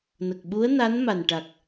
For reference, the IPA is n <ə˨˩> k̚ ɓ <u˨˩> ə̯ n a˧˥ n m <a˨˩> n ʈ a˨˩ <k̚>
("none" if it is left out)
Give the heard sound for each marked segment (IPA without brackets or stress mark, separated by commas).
ə˨˩, u˧˥, a˨˩, k̚